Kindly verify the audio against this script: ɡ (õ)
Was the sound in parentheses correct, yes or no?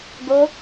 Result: no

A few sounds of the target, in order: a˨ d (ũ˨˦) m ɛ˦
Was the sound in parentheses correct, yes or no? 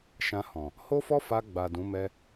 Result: yes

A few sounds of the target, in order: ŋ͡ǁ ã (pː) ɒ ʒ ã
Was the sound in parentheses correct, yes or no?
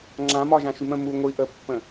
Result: no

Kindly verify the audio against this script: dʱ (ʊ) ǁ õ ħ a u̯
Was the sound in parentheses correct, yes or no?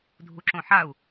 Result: no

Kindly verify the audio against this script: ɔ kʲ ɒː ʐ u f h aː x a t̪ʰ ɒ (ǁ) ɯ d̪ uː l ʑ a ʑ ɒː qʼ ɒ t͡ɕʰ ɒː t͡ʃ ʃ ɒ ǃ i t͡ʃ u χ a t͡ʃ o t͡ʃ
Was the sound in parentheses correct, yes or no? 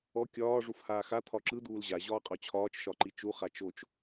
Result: yes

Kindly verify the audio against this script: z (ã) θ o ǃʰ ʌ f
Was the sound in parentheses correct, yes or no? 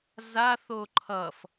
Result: no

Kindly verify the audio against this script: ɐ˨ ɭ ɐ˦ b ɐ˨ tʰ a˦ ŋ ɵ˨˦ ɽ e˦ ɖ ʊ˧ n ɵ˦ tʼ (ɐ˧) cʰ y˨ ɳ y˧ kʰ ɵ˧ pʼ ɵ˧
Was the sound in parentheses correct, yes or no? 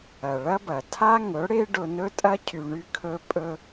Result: no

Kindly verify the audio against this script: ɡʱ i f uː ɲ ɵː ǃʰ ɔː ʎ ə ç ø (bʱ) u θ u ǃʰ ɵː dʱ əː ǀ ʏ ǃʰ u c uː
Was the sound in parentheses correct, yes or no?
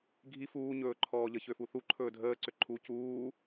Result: no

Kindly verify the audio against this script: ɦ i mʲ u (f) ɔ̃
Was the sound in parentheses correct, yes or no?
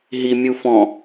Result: yes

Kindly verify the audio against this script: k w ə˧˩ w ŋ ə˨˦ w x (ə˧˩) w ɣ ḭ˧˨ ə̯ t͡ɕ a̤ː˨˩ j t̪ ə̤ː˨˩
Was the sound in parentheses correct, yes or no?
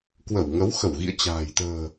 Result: yes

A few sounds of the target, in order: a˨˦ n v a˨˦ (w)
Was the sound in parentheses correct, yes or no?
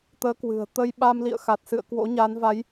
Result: no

